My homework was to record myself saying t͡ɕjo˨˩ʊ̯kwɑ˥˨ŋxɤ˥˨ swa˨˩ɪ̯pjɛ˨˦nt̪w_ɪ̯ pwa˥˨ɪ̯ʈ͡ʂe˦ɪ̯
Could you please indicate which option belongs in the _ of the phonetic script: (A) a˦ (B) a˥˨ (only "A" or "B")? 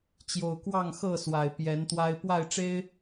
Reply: A